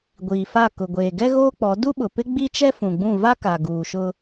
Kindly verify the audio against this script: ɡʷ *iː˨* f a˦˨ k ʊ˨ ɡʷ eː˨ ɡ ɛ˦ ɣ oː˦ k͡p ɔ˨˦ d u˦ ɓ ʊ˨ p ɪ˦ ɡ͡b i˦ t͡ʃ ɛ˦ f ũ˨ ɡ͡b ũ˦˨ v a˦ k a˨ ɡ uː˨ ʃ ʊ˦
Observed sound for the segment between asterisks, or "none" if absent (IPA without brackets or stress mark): iː˨